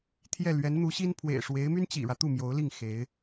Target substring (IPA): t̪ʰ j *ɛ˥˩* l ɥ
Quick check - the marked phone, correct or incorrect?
correct